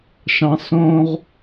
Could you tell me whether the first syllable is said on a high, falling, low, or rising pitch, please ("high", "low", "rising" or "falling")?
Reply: high